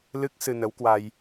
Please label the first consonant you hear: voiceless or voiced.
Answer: voiced